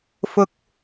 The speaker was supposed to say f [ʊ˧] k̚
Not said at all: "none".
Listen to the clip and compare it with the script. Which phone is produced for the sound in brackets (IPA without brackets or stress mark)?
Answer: ʊ˧